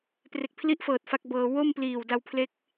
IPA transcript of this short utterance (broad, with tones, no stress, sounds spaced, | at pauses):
p r e˨˩ k̚ pʰ l i˦˥ ʔ f ɤː˨˩ t̚ f a˦˥ k̚ b ɤː˧ w o˥˩ m p l iː˨˩ w d a˧ w pʰ l e˦˥ k̚